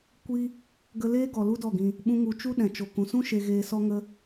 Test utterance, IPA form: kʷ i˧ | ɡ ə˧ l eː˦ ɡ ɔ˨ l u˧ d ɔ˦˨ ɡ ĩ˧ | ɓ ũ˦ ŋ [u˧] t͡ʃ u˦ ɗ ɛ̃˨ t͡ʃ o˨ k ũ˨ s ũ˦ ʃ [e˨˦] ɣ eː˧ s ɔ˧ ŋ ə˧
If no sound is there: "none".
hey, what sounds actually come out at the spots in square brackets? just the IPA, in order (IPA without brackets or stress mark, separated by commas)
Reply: u˧, e˧